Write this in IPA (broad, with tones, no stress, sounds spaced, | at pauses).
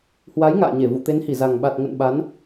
h w a˨˦ j ŋ a̰ː˧˨ ɲ e˧˩ v ṵ˧˨ t̪ e˨˦ n h i˧˩ z a˨˩ ŋ ɓ a˨˩ t̚ ŋ ə̰˧˨ n ɓ a˨˦ n